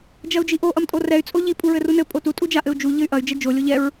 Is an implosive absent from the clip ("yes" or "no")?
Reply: yes